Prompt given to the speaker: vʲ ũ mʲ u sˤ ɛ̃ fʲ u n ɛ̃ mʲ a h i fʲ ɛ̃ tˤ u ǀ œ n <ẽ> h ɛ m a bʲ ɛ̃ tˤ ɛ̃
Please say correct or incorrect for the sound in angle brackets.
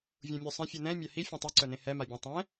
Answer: correct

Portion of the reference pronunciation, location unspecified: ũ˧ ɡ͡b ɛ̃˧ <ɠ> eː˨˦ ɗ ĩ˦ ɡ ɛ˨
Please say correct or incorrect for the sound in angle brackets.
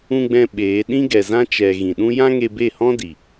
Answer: incorrect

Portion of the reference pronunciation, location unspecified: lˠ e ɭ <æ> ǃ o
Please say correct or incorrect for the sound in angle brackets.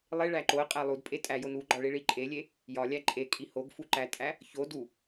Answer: correct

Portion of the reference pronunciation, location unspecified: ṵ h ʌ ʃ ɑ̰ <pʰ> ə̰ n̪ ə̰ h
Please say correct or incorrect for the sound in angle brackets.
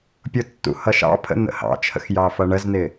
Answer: correct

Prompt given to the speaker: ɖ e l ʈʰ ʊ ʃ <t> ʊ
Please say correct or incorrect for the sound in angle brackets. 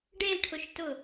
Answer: correct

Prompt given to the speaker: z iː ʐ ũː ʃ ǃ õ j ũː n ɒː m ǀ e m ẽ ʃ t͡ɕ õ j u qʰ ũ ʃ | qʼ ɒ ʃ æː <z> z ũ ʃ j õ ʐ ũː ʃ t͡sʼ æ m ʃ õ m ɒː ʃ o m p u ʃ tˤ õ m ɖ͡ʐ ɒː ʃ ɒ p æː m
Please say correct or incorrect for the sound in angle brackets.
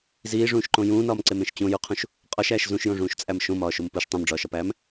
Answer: incorrect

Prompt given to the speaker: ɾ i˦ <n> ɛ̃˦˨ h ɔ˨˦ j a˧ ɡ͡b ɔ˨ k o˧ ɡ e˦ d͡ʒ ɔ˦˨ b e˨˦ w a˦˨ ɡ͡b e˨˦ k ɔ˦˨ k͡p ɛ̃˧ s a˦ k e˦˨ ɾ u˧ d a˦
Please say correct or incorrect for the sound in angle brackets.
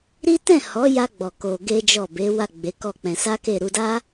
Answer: incorrect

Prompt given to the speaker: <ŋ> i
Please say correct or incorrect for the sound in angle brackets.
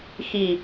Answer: incorrect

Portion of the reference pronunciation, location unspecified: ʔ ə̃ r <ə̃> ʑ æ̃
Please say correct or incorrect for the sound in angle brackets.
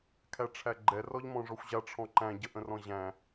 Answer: incorrect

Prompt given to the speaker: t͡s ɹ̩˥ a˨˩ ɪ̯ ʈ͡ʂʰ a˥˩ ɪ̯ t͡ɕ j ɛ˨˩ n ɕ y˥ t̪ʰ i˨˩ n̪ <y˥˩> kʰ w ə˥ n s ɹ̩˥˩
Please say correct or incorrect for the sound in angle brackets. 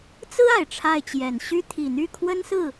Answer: correct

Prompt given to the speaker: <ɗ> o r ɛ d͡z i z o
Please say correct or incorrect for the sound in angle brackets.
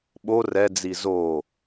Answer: incorrect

